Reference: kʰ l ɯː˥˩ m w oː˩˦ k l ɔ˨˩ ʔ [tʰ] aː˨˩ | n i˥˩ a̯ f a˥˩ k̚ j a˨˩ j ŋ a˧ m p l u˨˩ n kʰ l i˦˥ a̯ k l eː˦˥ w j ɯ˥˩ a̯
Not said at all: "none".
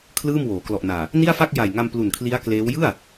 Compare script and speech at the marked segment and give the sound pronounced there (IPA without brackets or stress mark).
n